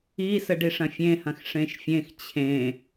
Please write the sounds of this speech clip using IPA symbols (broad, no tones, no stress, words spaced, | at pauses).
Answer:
isəɖi ʂɐ̃fʲẽhɐ̃x ʂẽʃfʲẽx t͡ɕʰẽ